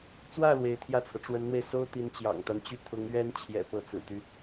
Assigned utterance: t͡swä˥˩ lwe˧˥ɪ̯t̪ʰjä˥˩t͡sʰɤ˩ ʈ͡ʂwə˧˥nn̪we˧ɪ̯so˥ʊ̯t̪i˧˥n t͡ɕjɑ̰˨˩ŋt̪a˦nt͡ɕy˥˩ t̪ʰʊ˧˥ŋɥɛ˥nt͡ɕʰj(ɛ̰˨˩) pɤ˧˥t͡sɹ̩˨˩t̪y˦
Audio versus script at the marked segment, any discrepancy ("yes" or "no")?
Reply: no